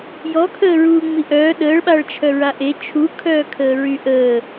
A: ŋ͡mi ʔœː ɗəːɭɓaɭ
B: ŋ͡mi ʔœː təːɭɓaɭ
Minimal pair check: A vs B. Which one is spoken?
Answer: A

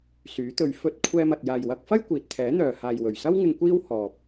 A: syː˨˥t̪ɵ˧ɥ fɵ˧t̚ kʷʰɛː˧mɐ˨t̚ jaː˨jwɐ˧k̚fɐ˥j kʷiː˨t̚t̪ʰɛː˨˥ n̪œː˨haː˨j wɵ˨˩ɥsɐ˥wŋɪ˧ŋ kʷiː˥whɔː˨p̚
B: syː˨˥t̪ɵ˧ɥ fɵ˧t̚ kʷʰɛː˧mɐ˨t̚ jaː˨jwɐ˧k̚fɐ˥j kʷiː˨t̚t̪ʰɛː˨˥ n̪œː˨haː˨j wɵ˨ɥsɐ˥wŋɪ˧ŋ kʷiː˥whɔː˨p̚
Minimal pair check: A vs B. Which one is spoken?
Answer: A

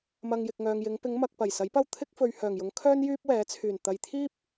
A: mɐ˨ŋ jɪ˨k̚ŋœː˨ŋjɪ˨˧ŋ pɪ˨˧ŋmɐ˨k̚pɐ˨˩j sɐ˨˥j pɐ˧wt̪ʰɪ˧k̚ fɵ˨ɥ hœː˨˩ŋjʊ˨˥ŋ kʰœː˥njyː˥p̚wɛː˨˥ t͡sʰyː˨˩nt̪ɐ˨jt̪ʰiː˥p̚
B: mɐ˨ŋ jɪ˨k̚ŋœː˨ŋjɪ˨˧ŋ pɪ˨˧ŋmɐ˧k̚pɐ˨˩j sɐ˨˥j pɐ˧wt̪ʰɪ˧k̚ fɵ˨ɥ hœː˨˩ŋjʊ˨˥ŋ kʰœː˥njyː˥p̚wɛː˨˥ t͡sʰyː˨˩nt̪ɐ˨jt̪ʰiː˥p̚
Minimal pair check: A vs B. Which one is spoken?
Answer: A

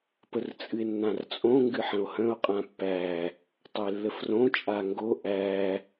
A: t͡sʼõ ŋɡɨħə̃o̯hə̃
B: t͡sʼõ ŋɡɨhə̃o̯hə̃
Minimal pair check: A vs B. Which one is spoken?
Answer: A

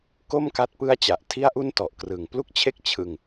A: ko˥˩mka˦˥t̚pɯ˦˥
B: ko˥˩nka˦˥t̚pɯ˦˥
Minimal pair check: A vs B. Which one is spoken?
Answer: A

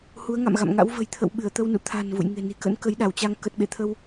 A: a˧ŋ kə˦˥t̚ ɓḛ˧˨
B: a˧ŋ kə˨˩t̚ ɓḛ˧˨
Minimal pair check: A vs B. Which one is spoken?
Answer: B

